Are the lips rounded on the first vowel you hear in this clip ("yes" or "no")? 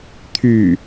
yes